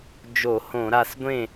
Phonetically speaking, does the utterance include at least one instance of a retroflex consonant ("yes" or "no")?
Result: no